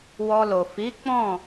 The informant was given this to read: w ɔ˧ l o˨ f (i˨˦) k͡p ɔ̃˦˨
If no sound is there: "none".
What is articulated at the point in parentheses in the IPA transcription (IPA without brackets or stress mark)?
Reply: i˨˦